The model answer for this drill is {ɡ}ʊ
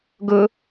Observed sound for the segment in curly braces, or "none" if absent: ɡ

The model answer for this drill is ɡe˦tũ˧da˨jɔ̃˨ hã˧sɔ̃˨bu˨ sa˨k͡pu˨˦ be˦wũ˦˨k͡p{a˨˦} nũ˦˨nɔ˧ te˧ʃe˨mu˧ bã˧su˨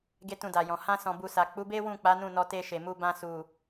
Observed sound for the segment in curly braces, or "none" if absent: a˨˦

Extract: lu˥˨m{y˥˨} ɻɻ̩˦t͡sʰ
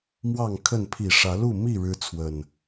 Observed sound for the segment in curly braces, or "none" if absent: i˥˨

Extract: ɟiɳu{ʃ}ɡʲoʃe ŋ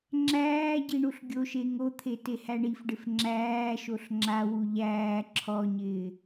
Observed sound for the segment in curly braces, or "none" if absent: ɬ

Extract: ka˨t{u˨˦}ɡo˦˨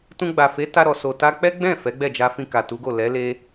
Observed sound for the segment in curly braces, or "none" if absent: u˨˦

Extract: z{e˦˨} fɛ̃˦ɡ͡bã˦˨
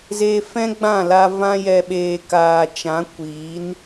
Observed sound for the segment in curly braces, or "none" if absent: e˨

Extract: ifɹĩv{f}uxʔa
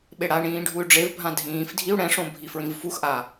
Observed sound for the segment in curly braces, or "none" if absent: f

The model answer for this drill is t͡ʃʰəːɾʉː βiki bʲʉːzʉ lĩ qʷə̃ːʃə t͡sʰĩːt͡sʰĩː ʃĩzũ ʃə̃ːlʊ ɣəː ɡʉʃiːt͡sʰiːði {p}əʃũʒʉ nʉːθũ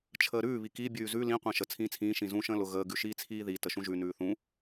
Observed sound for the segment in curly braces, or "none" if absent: t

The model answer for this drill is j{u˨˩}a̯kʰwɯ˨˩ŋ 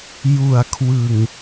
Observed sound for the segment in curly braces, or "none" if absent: u˨˩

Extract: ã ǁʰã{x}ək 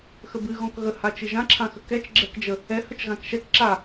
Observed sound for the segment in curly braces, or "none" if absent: x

